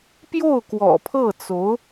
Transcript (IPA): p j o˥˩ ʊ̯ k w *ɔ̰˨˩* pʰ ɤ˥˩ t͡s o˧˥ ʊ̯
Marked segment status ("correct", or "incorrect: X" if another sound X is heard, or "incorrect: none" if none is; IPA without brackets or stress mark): correct